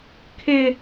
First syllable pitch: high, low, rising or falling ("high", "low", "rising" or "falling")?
high